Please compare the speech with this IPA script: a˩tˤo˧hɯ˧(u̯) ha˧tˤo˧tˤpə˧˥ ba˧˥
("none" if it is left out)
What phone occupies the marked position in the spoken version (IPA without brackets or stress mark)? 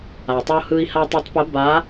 i̯